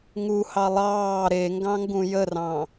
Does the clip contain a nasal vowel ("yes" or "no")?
yes